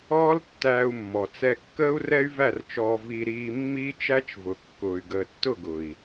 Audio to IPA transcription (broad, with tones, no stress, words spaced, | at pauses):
ɔː˦ltːæː˧u̯mːɔ˨ t͡sɛ˧kːəː˦u̯rɛ˦y̯ væ˦˨rt͡ʃɔː˧ vi˧ɾiː˧ mːiː˦t͡ʃæ˦t͡ʃvʊ˨kːʊː˨y̯ ɡəː˨tːʊ˦˨ɡʊ˨i̯